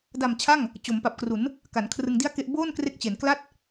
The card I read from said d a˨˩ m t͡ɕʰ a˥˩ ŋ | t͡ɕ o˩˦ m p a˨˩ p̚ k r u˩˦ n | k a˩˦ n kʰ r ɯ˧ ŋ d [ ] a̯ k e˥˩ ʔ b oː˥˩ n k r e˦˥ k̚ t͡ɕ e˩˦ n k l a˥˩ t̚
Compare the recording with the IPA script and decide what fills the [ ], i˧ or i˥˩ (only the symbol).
i˥˩